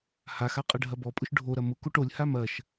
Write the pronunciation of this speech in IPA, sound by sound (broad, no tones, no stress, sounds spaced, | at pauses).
h a x a qʼ ɐ ɖʱ ɐ b ɔ pʼ ʊ ʃ ɖʱ o ɾ ɐ m ʊ k o ʈ o lʲ h a m ɐ ʃ